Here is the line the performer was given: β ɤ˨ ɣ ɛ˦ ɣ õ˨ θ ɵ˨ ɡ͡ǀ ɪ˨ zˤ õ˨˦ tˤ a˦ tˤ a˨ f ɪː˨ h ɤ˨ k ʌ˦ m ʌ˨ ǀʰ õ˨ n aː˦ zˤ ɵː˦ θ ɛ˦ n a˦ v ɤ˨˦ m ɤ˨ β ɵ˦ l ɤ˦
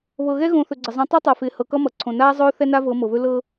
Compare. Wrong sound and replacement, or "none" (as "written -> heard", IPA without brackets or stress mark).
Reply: none